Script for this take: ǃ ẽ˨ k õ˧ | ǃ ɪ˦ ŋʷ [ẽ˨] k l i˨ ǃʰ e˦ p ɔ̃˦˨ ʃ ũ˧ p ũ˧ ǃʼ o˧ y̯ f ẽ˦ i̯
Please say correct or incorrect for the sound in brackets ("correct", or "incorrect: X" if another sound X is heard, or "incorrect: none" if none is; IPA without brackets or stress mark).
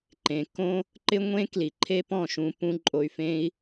incorrect: ẽ˦